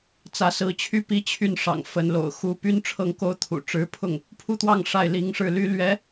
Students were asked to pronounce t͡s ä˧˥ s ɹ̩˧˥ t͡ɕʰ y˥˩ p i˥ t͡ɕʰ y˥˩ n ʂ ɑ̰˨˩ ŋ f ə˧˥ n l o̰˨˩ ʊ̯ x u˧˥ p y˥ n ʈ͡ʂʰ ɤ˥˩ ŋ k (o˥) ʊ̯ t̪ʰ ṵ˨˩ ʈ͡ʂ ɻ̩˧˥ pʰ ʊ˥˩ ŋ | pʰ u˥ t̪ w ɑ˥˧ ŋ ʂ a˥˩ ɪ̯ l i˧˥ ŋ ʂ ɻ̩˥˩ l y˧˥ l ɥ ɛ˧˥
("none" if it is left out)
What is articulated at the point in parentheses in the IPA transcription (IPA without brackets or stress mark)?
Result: o˥